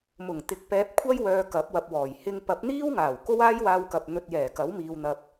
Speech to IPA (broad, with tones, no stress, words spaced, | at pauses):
mʊ˨˩ŋt̪ɪ˨˥k̚ pɛː˨˥p̚kʷʰɐ˥jwœː˨ kɐ˨˥p̚wɐ˨p̚wɔː˨˩j hɪ˧ŋ pɐ˨˥p̚n̪iː˥wŋaː˨˩w ko˥waː˥jwaː˧wkɐ˨p̚ n̪ɵ˨t̚ jɛː˨˩kɐ˨˥wmiː˨w n̪ɐ˨p̚